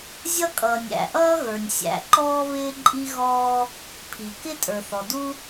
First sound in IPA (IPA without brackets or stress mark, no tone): zʲ